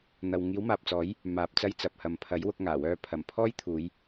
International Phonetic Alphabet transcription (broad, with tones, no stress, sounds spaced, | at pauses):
n̪ ɐ˨ w ŋ iː˨˥ w m aː˨ p̚ t͡s ɔː˨˥ j | m aː˨ p̚ t͡s ɐ˧ j t͡s ɐ˨ p̚ h ɐ˨ m pʰ ɐ˨˥ j w ʊ˧ k̚ ŋ aː˨˩ w œː˧ pʰ ɐ˨˩ m pʰ ɔː˥ j t̪ʰ uː˨˧ j